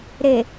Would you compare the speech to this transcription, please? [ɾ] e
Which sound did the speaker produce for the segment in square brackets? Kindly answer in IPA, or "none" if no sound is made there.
ɾ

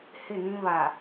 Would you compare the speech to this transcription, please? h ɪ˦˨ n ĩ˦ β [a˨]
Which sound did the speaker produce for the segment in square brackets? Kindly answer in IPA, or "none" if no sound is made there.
a˨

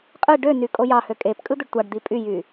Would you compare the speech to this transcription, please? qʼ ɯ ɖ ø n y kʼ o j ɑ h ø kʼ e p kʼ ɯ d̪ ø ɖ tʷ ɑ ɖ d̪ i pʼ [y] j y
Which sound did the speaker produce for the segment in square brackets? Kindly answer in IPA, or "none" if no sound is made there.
y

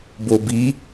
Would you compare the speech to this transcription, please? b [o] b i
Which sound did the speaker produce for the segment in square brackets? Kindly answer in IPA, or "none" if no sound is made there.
o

